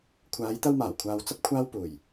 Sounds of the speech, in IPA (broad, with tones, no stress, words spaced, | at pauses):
kʷʰaː˨˧jt̪ɐ˧wmaː˨˩wkʷʰaː˨w t͡sɐ˥p̚kʷʰaː˥wpuː˨˩j